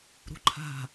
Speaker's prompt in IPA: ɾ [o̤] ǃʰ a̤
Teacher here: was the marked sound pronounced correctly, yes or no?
no